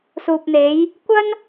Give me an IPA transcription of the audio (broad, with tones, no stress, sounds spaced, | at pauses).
s uː˨ p̚ n̪ e˨˧ j | kʷ ɐ˥ n